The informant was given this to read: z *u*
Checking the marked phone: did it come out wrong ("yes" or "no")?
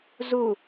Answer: no